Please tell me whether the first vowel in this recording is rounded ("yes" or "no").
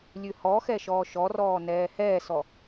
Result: yes